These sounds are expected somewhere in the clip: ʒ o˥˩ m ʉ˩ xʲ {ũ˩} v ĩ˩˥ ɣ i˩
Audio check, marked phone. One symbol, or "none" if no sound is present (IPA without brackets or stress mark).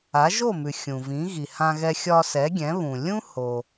ũ˩